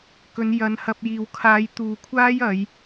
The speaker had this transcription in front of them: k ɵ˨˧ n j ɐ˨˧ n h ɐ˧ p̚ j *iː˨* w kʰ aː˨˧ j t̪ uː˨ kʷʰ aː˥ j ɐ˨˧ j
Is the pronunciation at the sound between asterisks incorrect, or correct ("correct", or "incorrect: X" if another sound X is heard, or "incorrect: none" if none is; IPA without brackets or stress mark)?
correct